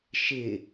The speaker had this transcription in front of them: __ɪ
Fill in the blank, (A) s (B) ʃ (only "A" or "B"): B